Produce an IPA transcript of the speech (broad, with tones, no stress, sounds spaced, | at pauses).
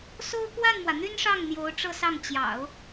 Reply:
s o˥ ʊ̯ k w a˥˩ n m w ä˩ n̪ y˥ n ʂ ɑ˥˩ ŋ n̪ j o˧˥ ʊ̯ ʈ͡ʂ ɤ˥˧ s ɑ˥˩ ŋ t͡ɕ j ɑ̰˨˩˦ ʊ̯